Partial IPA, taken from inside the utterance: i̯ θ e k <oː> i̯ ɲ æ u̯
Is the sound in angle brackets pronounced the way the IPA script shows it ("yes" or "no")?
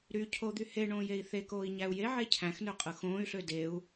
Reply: yes